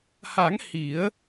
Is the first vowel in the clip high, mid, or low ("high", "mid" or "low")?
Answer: low